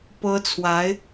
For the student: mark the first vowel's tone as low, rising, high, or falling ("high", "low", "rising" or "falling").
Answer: high